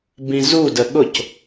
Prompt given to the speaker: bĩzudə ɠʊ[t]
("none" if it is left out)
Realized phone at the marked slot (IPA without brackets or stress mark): c